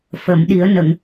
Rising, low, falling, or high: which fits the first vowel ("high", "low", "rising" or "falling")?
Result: low